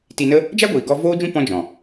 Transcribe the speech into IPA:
t i˧ n ə˦ | d͡ʒ a˦ ɡʷ iː˨ ɡ ɔ˧ v oː˦ d͡ʒ ũ˦ p ɔ̃˦ d͡ʒ ɔ̃˨

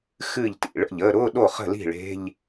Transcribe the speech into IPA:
x ɨ˥˩ ʎ t ḭ˥˩ ɭ ə̰˥˩ ʎ əː˧˥˧ ɾ ʊː˧˥˧ ɗ o˥˩ χ ə̤˥˩ l i̤˥˩ ɭ e̤˧˥˧ ʎ

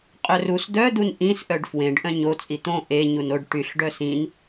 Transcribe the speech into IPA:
qʼ œ r u s d̪ œ d̪ u n ʔ ĩ s ʔ œ ɖ f w ẽ ɖ ʔ œ̃ ɲ o t͡sʼ i t̪ õ ʔ e ɲ u n o ɖ ʈ y ɬ ɖ œ s ĩ n

